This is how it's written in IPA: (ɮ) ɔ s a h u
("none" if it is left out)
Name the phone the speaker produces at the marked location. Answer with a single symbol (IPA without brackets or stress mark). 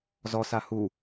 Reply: z